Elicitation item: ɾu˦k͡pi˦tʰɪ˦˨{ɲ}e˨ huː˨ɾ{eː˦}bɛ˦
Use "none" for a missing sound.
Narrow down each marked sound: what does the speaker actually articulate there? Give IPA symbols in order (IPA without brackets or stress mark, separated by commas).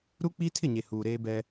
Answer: ɲ, eː˦